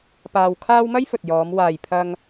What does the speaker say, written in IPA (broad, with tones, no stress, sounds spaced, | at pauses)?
p aː˧ w kʰ aː˥ w m ɐ˥ j f ɵ˨ t̚ j ɔː˨˧ m w aː˨ j pʰ ɐ˧ ŋ